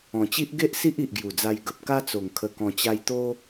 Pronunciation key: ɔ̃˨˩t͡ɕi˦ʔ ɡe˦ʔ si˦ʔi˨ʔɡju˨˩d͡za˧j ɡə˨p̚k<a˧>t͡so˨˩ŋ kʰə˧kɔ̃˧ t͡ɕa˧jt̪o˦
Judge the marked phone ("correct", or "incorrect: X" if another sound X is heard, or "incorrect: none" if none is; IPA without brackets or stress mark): incorrect: a˦